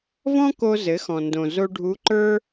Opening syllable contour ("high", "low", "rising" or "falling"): high